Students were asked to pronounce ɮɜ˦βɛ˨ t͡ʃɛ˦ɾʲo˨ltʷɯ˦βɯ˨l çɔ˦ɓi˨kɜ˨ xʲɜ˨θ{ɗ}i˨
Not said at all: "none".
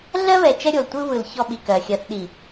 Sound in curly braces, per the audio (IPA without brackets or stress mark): ɗ